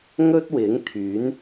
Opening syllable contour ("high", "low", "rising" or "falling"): high